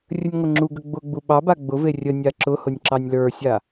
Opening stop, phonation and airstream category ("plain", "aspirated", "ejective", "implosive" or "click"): click